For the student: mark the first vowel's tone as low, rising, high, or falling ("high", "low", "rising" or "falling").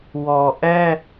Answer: low